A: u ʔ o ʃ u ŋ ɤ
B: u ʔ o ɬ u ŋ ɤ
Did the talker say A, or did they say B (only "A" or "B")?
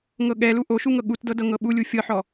A